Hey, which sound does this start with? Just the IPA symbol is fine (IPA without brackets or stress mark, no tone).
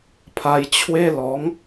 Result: pʰ